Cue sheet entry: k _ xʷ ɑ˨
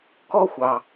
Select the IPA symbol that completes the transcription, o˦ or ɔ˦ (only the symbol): ɔ˦